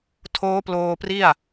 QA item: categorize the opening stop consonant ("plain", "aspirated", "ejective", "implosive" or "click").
aspirated